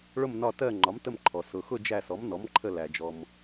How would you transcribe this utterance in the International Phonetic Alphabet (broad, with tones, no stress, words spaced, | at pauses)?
ɭʊ˦˨mnɒ˦˨tɜ˦˨ ŋ͡ǃɒ˩˥mtə˦˨mǃʰɔ˩ sʊ˩xʊ˦˨ d͡ʒæ˦˨sɔ˩˥mnɔ˩˥m ǃʰə˦˨læ˩ d͡ʒɔ˩m